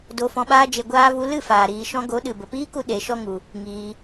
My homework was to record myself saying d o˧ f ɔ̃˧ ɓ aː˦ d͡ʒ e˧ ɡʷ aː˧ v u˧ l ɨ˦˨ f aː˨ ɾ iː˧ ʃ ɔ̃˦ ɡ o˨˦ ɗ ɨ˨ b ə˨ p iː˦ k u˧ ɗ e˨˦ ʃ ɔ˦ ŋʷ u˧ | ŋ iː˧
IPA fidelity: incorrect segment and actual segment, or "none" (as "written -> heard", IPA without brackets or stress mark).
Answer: ŋʷ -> ŋ